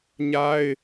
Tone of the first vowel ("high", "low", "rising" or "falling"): high